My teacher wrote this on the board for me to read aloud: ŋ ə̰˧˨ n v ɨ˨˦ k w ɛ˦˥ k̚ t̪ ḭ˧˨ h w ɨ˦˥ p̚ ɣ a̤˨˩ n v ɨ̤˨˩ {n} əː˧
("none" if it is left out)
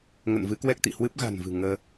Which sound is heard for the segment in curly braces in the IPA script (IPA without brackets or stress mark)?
ŋ